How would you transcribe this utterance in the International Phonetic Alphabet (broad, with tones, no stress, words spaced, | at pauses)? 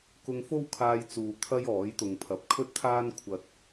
kʊ˧ŋfo˥wkʰaː˧jt͡suː˨ t̪ʰɐ˥jɔː˨˥j t̪ʊ˨ŋpʰɐ˨p̚kʰɵ˥t̚t̪ʰaː˥n kʷʰɐ˧t̚